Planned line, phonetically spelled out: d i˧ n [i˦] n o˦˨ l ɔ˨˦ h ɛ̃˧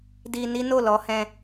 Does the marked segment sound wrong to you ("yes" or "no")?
no